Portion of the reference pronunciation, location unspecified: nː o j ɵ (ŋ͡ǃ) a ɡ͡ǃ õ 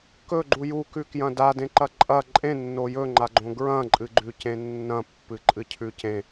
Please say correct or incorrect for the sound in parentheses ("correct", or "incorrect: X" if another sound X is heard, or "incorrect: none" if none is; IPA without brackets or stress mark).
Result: correct